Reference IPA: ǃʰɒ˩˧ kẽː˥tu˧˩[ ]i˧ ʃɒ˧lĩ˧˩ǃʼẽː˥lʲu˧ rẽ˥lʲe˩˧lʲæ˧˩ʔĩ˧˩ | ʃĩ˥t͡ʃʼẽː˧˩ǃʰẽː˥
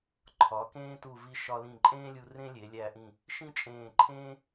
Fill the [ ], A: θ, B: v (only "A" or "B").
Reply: B